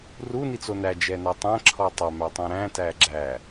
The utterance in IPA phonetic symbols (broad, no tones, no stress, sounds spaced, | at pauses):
r u n i t͡s o n æ d͡ʒ ɛ n æ tˤ æ̃ ǁʰ ɔ tˤ æ m æ tˤ ɛ̃ ɾ æ̃ t æ ɡ͡ǁ æ